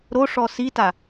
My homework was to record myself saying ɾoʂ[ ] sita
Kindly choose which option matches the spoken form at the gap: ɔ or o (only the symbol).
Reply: ɔ